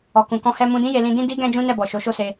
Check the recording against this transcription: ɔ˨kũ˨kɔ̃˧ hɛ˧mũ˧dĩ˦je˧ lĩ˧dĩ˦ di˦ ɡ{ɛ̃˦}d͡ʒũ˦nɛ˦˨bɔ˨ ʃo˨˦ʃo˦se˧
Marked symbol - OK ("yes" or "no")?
yes